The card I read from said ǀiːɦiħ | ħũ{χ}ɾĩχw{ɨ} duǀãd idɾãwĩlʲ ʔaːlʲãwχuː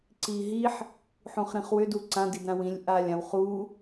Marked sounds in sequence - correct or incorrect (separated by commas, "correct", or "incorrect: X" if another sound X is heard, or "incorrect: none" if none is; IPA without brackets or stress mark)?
correct, incorrect: ʏ